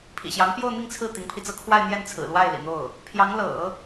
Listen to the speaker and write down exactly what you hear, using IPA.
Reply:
pʰ ḭ˨˩ ɕ j ɑ˧˥ ŋ p j o˥˧ ʊ̯ n̪ i˥˧ ŋ t͡sʰ ɹ̩˥˩ t̪ i˧˥ ŋ pʰ i˧ t͡s ɤ˥ kʰ w a˥˧ ɪ̯ n̪ j ɛ˥˩ n t͡sʰ ɹ̩˨˩ l w a˥˩ ɪ̯ l ḭ˨˩ n̪ o˥˩ ʊ̯ | pʰ j ɑ˧˥ ŋ l ɤ̰˨˩˦

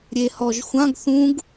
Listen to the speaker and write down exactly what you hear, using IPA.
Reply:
ɾʲ e h ɔ ʒ xʷ ã ɡ θ ũ ɡ

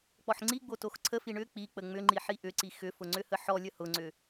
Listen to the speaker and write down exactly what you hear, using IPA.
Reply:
k͡p ɔ ħ ŋ͡ǀ i ɡ͡b o t o x ǀʰ ə f i ɳ ʏ k͡p i k͡p ə ŋ͡m ʏ ŋ͡ǃ i ħ i ʔ ʏ ǀ i x ʏ f ʊ ŋ͡ǀ ʏ h ə ħ ɔ lʲ ə h ʊ ŋ͡ǀ ʏ

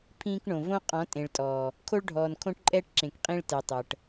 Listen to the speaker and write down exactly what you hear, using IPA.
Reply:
pʰ ĩː˦ k ɳ õ˨ v õ˦ qʼ ɔ̃˨˦ tʼ ẽ˨ ɭ tʼ ɔː˨ | kʰ o˦ ɭ ɖʱ ɔː˨ n kʰ õ˦ ʈ ǃʼ ɛː˦ ʈ ǁ ẽ˨ k qʼ ĩ˦ ɭ t ɛ˨ tˤ ɤ˨ ʈ

